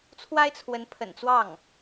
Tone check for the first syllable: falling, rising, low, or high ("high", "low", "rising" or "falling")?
high